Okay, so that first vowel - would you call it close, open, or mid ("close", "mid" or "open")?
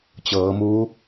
mid